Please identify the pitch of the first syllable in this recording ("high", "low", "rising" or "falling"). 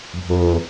low